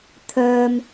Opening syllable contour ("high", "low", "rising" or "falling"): low